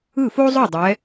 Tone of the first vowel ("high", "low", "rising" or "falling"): falling